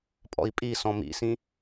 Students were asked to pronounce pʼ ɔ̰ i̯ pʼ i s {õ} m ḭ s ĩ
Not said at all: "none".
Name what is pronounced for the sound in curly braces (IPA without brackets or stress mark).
ɔ̃